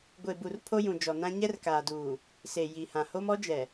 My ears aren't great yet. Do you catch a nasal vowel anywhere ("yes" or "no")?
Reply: yes